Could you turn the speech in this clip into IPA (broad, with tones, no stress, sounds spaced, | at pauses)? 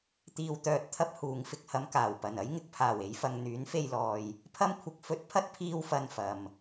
t̪ iː˨ w t̪ œː˨ t̚ t̪ʰ ɐ˧ p̚ h uː˨˧ ŋ f ɪ˧ k̚ h ɐ˧ m k aː˨˩ w p ɐ˨˩ n ɐ˥ j ŋ ɪ˨ k̚ pʰ aː˨˩ w e˨˧ j f ɐ˨ ŋ n̪ yː˨˥ n f e˧ j l ɔː˨ j | pʰ ɐ˥ m kʷʰ ɪ˧ k̚ f ɵ˧ t̚ pʰ ɐ˥ t̚ pʰ iː˥ w f ɐ˧ n f ɐ˨ m